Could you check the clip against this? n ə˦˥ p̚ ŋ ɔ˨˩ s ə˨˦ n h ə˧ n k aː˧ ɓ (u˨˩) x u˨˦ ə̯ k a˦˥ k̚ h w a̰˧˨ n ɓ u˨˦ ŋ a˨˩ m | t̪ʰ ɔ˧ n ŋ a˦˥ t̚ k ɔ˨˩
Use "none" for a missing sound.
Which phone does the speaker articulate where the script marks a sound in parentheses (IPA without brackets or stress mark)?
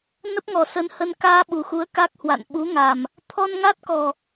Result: u˨˩